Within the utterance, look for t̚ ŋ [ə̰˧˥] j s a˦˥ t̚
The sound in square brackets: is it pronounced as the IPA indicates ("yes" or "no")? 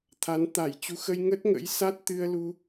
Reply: yes